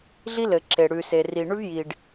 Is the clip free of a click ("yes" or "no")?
no